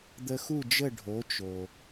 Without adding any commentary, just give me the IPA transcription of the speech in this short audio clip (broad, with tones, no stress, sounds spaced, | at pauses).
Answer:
d̪ ə˧ x u˥˩ d͡ʒ ə˥˩ ɖʱ o˩˥ t͡ʃ o˩